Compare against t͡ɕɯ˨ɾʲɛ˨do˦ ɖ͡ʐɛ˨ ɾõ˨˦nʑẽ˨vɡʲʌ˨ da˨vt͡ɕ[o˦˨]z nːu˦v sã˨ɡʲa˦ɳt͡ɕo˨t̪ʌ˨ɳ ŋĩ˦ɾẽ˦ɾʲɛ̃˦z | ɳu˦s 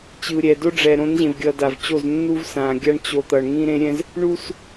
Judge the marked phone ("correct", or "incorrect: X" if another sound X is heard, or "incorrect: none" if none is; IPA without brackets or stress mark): correct